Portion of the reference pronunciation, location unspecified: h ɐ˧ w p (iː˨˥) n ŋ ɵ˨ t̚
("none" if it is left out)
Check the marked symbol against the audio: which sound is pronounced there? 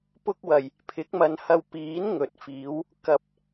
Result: iː˨˥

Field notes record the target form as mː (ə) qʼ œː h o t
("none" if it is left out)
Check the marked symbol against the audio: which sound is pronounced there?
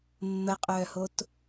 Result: ə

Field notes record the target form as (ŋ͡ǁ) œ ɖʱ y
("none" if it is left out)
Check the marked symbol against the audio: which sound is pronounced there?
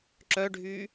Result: ǁ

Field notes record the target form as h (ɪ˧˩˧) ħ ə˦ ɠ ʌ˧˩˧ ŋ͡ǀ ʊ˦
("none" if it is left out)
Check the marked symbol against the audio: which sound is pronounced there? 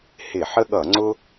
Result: ɪ˧˩˧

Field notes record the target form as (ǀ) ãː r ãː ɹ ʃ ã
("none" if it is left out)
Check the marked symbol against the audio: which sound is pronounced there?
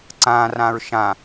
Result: ǀ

